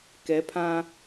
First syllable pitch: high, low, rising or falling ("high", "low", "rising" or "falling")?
rising